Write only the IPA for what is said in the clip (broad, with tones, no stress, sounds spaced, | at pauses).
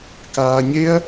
k aː˧ ɲ e˦ ɐ̯